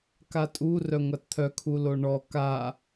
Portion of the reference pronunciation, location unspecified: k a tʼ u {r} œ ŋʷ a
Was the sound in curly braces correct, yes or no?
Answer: yes